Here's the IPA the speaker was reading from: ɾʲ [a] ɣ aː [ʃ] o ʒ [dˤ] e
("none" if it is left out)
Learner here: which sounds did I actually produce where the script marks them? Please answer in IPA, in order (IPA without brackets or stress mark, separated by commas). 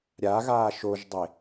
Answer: a, ʃ, dˤ